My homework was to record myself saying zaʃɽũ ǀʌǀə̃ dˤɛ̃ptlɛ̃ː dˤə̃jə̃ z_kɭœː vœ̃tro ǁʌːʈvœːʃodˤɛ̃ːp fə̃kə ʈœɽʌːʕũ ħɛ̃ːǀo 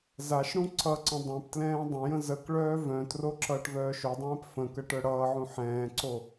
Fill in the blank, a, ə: ə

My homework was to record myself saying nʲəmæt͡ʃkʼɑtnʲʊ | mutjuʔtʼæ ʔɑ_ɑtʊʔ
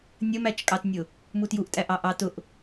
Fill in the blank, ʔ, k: ʔ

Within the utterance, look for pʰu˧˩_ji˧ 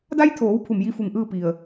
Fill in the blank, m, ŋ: m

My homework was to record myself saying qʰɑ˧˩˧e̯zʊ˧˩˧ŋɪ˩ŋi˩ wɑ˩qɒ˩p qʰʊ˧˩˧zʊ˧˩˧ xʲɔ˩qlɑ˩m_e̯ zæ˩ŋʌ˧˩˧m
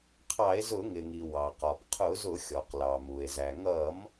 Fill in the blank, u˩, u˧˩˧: u˩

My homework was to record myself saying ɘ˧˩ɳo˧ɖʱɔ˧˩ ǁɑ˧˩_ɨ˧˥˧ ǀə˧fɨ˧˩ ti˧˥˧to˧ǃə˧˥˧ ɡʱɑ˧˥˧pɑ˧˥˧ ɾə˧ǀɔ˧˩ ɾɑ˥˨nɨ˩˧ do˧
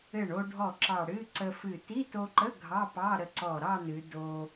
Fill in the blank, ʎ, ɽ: ɽ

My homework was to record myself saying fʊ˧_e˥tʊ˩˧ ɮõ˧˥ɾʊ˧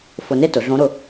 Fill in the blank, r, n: n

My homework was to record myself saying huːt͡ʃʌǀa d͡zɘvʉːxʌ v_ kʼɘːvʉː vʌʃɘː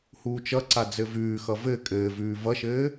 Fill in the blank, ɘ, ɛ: ɘ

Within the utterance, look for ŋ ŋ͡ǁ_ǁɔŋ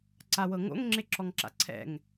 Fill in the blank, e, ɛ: e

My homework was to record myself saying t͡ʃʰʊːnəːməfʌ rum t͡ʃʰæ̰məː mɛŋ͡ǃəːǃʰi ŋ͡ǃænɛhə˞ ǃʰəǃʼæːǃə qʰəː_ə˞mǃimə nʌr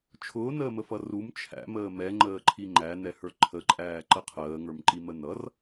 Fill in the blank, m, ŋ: ŋ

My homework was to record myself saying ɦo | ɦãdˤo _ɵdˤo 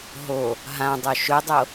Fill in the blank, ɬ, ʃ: ʃ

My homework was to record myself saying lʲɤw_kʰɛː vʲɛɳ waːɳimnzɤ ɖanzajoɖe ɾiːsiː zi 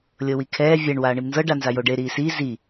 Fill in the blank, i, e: i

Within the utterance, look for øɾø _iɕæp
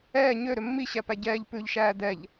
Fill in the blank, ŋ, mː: mː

